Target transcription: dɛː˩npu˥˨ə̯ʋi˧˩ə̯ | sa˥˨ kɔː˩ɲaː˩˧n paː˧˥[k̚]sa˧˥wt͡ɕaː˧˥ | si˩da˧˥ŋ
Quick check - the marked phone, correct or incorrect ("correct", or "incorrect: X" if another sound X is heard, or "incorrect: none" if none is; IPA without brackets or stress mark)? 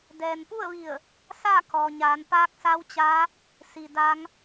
correct